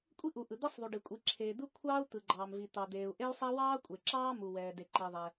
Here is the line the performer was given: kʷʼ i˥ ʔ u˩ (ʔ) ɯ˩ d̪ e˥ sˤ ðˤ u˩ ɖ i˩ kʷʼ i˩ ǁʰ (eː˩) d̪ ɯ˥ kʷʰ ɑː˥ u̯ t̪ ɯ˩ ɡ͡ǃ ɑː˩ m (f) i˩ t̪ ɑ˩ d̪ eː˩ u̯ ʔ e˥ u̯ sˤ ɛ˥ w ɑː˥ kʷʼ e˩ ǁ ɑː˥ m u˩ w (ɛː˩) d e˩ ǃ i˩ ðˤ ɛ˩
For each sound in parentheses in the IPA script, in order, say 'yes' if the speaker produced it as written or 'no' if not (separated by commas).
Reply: yes, yes, no, yes